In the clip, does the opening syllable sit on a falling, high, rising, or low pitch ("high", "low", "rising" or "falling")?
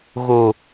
low